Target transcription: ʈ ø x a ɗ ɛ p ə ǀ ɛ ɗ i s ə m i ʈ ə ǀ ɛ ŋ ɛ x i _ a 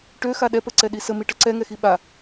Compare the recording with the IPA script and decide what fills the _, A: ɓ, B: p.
A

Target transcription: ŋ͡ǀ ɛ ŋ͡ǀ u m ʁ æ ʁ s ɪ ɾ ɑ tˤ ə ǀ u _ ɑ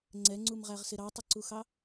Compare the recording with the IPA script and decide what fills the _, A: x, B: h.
A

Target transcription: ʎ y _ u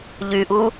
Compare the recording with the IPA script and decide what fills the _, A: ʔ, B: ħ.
A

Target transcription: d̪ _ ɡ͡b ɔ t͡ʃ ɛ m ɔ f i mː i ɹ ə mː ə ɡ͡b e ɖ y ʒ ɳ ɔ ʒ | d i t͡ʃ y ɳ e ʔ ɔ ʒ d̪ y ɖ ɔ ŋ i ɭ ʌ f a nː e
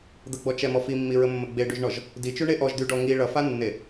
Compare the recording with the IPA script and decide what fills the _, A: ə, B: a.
A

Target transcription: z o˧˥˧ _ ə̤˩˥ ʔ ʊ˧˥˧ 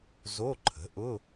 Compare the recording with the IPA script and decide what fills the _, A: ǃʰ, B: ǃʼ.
A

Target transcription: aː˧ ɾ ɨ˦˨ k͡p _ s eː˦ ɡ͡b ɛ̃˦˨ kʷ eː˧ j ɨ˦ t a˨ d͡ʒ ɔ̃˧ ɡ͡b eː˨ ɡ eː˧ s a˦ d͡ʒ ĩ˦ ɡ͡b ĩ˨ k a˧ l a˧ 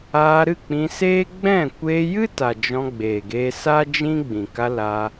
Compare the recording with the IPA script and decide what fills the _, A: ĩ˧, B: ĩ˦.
A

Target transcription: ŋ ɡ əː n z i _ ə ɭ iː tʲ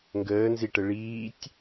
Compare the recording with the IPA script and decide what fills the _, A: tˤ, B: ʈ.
B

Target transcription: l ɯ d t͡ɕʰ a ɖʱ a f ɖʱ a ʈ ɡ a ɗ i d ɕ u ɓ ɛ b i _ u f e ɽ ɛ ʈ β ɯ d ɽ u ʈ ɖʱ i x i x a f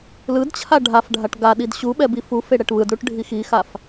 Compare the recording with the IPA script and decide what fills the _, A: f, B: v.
A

